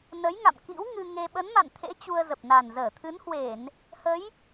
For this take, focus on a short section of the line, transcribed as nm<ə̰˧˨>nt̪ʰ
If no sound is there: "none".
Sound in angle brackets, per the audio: a̰˧˨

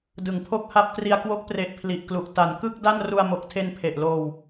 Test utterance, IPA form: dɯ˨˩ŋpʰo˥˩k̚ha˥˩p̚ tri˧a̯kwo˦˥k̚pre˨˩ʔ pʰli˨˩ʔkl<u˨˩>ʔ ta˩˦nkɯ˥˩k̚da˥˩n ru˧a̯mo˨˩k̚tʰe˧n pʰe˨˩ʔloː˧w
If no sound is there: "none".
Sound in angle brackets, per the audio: u˨˩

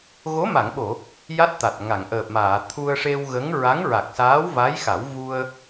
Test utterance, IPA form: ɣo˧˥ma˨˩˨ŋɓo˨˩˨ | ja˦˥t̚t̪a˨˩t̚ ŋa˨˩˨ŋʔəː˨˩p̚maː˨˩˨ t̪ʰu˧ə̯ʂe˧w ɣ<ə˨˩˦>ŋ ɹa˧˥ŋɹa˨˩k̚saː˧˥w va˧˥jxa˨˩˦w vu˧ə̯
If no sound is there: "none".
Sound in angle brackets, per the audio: ə˧˥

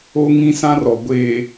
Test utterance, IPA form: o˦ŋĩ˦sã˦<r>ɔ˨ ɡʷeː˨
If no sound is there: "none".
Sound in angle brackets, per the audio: r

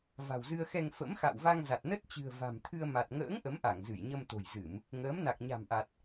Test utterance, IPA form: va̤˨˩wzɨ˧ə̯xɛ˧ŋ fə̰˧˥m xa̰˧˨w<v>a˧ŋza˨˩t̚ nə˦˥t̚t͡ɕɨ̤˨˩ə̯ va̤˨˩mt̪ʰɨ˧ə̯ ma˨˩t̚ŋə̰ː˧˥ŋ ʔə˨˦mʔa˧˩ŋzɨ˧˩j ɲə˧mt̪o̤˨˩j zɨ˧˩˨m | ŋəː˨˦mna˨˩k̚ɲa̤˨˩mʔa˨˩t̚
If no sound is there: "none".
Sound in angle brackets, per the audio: v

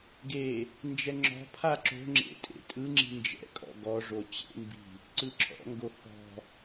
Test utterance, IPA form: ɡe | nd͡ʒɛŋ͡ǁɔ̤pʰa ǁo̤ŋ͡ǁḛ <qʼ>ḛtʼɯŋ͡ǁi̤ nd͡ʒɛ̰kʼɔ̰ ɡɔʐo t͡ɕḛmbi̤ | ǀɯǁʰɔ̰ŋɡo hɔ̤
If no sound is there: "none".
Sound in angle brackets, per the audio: tʼ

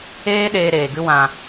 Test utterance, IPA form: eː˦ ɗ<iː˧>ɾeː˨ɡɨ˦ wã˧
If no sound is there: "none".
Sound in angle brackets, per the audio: eː˧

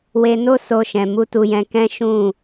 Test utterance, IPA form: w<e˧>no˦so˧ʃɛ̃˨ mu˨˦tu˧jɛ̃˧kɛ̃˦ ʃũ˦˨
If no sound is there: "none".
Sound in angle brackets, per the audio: e˧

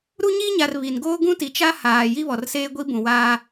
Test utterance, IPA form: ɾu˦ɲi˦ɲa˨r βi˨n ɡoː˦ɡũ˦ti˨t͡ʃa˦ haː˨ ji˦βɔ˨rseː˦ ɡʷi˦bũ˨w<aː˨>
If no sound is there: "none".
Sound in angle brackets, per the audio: aː˦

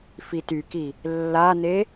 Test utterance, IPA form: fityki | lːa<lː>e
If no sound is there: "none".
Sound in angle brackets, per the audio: n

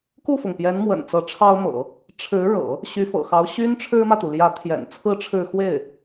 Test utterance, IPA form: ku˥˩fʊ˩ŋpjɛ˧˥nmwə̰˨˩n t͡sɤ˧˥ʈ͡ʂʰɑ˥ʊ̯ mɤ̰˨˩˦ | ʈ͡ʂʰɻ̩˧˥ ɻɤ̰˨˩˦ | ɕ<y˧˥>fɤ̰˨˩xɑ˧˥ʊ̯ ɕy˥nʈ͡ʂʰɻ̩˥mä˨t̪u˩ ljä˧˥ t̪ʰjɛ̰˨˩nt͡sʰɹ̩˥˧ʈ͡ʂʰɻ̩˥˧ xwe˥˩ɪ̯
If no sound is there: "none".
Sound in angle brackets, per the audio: y˧˥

